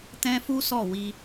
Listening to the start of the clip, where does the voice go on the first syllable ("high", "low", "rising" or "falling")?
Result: high